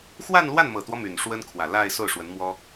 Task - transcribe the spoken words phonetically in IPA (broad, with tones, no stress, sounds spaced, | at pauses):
x w a˥˧ n l w a˥˩ n m ɤ˨˩ t̪ w ɔ˦ m y˨˩ n ʂ w ə˥ n kʰ w ä˨˩ l a˥˧ ɪ̯ s o˥˩ ʊ̯ ʂ w ə˧˥ n m w ɔ˥